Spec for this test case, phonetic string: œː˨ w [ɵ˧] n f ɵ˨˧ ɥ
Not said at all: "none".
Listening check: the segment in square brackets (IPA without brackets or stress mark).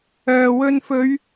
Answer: ɵ˧